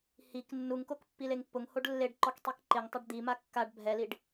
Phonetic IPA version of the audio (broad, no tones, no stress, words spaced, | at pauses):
hik nːuŋkok pːileŋpːʊŋhoɖ lːeɖǃɔk tˤikǃɪŋtˤɪɖ d̪ima kːaɖ bʱɛliɖ